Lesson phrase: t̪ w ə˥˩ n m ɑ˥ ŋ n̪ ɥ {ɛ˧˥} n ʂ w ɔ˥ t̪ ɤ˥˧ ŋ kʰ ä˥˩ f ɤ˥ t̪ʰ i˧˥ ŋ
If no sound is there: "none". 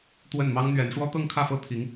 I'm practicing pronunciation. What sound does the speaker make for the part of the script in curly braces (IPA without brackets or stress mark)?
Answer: ɛ˧˥